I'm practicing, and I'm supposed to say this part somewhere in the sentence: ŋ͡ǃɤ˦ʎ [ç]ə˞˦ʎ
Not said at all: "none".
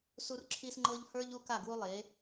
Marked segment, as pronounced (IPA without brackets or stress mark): h